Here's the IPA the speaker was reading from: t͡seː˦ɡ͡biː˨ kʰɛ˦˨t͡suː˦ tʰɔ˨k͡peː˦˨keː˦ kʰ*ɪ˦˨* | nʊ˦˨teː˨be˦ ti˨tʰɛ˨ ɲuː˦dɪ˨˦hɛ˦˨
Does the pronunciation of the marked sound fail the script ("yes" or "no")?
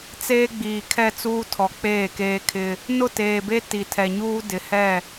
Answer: yes